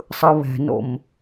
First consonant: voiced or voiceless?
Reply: voiceless